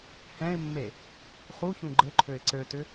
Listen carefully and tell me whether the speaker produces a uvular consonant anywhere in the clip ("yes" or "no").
yes